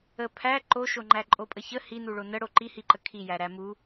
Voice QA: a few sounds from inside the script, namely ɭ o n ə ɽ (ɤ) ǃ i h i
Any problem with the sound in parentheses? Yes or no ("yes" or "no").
yes